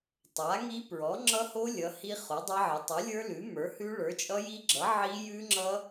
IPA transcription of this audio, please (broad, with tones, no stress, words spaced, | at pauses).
tˤa˩˥ŋi˦˥ pɹɔ˩˥ ŋ͡ǁʌ˦˥ho˦˥ lʲʌ˩˥hi˦˥ χo˩˥dˤʌ˦˥ʕə˩˥ tˤə˩˥lʲə˞˦˥ lʉ˩˥mə˞˩˥hʉ˦˥ ɭə˞˩˥t͡ʃʼʌ˦˥ji˦˥ɡ͡ǁʌ˩˥ ʕi˦˥jʉ˦˥ŋ͡ǁʌ˦˥